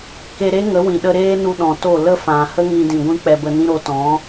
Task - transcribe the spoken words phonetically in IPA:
k e˧ ɾ e˦ ŋ ə˨˦ w ĩ˨ ɗ ə˧ ɾ eː˦ n u˧ ɗ ɔ̃˨ t o˦˨ l ə˦ f ã˨ h ə˦ ŋ ĩ˧ d ĩ˨ ɡʷ ĩ˧ k͡p ɛ˧ b ə˧ n ĩ˦ ɾ o˨˦ t ɔ̃˨˦

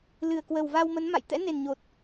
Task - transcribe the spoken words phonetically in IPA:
l ɨ˨˩ ə̯ k w ə˨˩ w v a˧ w m ə˨˦ n m a̰˧˨ j t̪ ɛ̰˧˥ n e˨˩ n ɲ o˨˩ t̚

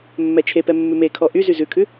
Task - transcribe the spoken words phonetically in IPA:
mː ɛ t͡ʃʰ e p ɛ mː ʉ m e kʰ ɔ ʔ y z y z ʉ kʰ ʉ

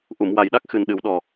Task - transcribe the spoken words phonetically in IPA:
ʔ u˨˩˨ m w a˨˩ j ɗ a˦˥ k̚ x ɨ˨˩ n ɗ ɨ˨˩˦ w ɗ ɔ˨˩

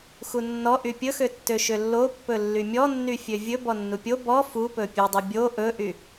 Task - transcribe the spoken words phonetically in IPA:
x u nː ɔ ʔ y pʲ ɵ x ø tː ø ʃ ø lː o pː ɵ lː y mʲ ɔ nː y fʲ ø vʲ ɵ b ɔ nː u pʲ o b ɔ f u p ɵ pʲ ø dˤ y bʲ o ʔ ɵ ʔ y

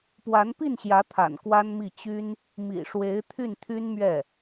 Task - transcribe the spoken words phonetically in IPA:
p w a˧˥ n p i˥˩ n ɕ j ä˧˥ t̪ʰ a̰˨˩ n k w a˥ n m i˥˩ t͡ɕ y˥ n | m ḭ˨˩ ʂ w e˧˥ ɪ̯ t̪ʰ y˥˩ n t̪ʰ y˥ n m ɥ ɛ˥˩

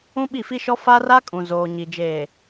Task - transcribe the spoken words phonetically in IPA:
ũ˦ ɓ i˦˨ f i˦ ʃ ɔ˦ f a˦ r a˦ kʼ ũ˨ z oː˨ ɲ i˨ d͡ʒ eː˨

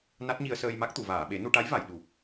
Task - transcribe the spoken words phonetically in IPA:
n a˦˥ t̚ ɲ i˧ ə̯ s əː˧ j m a˦˥ k̚ t̪ u˨˩˨ v aː˨˩˨ ɓ e˨˩˦ n u˧ ʈ a˧˥ j v a˨˩˨ j ɗ u˨˩ p̚

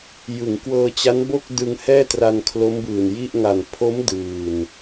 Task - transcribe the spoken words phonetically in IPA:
j ɯ˩˦ ŋ k w ɤː˧ t͡ɕ a˦˥ n b o˥˩ k̚ d ɯ˧ ŋ h ɛː˥˩ t r a˧ n kʰ l o˦˥ m b ɯː˨˩ n j i˥˩ ʔ ŋ a˨˩ n pʰ o˦˥ m d ɯː˨˩ n

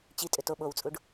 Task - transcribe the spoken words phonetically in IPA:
t͡ɕ i tʼ ʏ t o ɓ o w t͡sʼ u ɖ

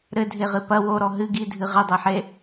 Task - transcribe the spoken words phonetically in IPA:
ɾ ɘ dʱ e ʁ ɨ p ɐ w o ɾ ɔ ɦ ɨ ɡ i dʱ ɨ ʁ ɘ dˤ ɛ ħ e

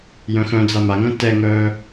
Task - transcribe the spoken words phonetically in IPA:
j œ̃ x œ̃ d͡z a m a ŋ œ̃ t ɛ ŋ œː

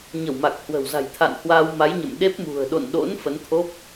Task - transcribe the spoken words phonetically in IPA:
ɲ ə˧˩ w m a˨˩ k̚ h w ə̤˨˩ w z a̤˨˩ j t̪ʰ a̰˧˨ n h w aː˧ w m a˨˦ j ɲ ə̰˧˨ m ɗ e˦˥ p̚ m ṳ˨˩ ə̯ ɗ o̰˧˨ n ɗ o̰˧˥ n f ə˨˦ n t̪ʰ o˦˥ p̚

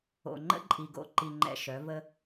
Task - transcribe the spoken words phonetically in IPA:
o̰˨ ŋ͡ǃ ə̰˦ ǃʼ i˨ ɡ o̰˦ ǃ i˨ ŋ͡ǃ ɛ̰˨ ʃ œ˨˦ v ə˦

